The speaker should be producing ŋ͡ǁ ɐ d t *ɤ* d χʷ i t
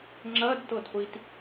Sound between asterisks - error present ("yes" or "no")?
no